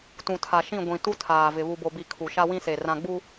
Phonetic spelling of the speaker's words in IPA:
t ũ˨ tʰ a˨ ʃ ĩ˦˨ ɡʷ ĩ˨ t u˦ tʰ aː˨ v ɪ˨ β u˨ b o˨ b i˨ kʰ u˨ ʃ a˦ w ĩ˦ s e˨ r ã˨ ɡ͡b u˦

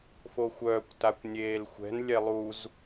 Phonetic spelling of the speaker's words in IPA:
f o xʷ œː kʷ t a kʷ nʲ eː l xʷ ɛ̤ n lʲ ɛ lˠ u z

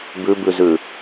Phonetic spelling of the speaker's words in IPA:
b ʉ b ʉ z ʉ

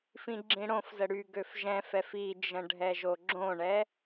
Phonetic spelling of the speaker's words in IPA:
f ĩ ɡ͡ǁ ĩ ɽ õ f z ə ɽ y ɡ ø f ʒ ɛ̃ f ɛ f i d͡ʒ ə̃ ɖʱ ɛ ʒ o ɡ͡ǁ õ ɳ ɛ

